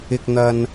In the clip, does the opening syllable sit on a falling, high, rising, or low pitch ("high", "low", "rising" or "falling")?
low